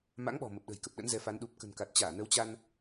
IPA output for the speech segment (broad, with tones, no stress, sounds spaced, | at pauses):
m a̰˧˥ ŋ ɓ ɔ̤˨˩ m ə˨˩ p̚ ɗ ə̤˨˩ j k ə˨˩ p̚ ɗ ə̰˧˥ n z ɛ˨˦ f a˨˦ n ɗ u˨˩ p̚ k ə̤˨˩ n k a˨˩ t̚ t͡ɕ aː˧˩ n ə˨˦ w t͡ɕ a˧ n